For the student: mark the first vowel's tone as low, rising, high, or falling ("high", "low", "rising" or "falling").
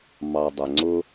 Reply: low